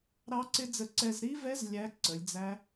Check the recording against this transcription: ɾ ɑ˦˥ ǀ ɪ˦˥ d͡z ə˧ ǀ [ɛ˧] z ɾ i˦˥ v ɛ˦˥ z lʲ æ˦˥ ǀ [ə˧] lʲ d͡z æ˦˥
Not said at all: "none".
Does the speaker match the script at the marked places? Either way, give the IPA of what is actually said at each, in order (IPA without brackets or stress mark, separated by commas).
ɛ˧, ə˩˧